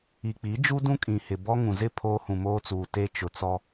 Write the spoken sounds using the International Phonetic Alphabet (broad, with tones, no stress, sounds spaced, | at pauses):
i˨ k͡p i˨˦ d͡ʒ u˦ d ũ˦ kʼ ĩ˨ h ɪ˨ b ɔ˦ ŋ ũ˨ z ɪ˦˨ pʰ oː˦ h ũ˨ m oː˦ t͡s uː˨ t e˦ t͡ʃ ʊ˨ t͡s ɔ˦